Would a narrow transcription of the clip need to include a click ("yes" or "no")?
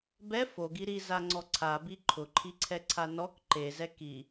yes